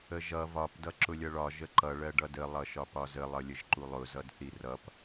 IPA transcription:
əʒʌ vɒp dʌǁʊlʲʌɭɒ ʒəǃʌ ɭɜɖʌdə lˠʌʃɒpɒzə lˠʌlʲəʒǃulˠʊ zʌdθirʌp

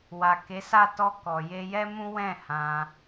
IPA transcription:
wa˨ ke˨˦sa˦˨ tɔ˧ kɔ˨je˧jɛ˦ mũ˦wɛ̃˦˨ hã˧

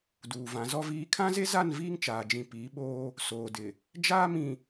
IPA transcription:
duː˨vã˨˦zɔ˦viː˦ kʰã˦ze˦za˦˨n viː˦ŋt͡ʃaː˨d͡ʒĩ˨ piː˨˦ɓoː˦ | soː˨dɪ˨ | d͡ʒaː˦mĩ˨

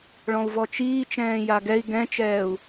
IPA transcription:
ɭɔ̃u̯vɔt͡ʃiːt͡ʃɛ̃ː jaɡɛi̯ ɡɛ̃t͡ʃɛːu̯

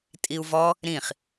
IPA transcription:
tʼiu̯vɔ | ɾĩχ

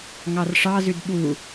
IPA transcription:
ŋɑrʂɑzʉd ɓu

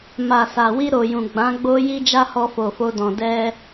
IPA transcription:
ma˨sa˨wi˧ ɾo˨jũ˨ ɡ͡bã˨˦ɡ͡bo˦ ji˦d͡ʒa˦hɔ˧ fo˨fo˧dɔ̃˨ dɛ˧

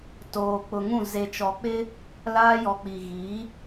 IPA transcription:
toː˨k͡pʊ˨ŋũ˦˨ ze˨t͡ʃɔ˨k͡pɪ˦ | laː˦jɔ˨k͡pi˨ ɣi˨˦

